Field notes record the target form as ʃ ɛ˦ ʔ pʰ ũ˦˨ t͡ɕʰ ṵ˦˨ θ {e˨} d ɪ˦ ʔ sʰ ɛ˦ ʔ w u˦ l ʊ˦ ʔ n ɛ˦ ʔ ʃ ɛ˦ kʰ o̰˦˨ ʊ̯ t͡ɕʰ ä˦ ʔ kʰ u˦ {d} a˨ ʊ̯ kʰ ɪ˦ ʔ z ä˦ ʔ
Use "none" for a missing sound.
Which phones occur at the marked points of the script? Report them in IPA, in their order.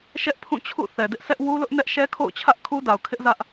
ɛ˨, d

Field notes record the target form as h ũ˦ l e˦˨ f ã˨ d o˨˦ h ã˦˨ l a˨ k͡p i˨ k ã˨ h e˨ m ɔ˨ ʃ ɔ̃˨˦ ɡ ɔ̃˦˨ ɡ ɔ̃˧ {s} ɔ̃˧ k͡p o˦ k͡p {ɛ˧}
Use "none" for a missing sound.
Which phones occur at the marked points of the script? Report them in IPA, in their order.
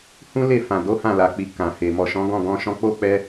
ʃ, ɛ˧

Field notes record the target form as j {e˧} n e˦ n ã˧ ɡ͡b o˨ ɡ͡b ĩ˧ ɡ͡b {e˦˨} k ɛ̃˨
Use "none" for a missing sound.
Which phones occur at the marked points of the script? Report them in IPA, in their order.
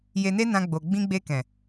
e˧, e˧

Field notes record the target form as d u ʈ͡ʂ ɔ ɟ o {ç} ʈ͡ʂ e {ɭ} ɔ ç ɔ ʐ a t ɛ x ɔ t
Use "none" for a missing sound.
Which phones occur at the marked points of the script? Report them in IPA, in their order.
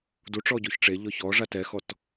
ç, ʎ

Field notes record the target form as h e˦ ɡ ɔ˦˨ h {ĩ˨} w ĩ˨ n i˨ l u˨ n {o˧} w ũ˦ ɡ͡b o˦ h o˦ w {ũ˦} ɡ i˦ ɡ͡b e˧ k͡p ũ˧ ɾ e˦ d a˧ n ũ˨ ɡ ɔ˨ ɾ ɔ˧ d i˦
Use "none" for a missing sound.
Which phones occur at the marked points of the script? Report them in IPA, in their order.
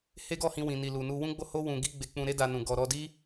ĩ˧, u˧, ũ˧

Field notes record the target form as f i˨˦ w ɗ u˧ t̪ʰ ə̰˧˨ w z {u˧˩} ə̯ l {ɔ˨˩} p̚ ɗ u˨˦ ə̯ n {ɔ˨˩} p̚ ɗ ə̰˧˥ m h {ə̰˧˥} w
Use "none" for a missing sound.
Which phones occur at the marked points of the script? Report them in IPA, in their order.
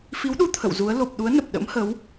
u˨˦, o˨˩, ə˨˩, ə˨˦

